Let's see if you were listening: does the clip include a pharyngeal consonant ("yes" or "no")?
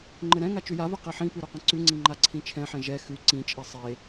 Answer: yes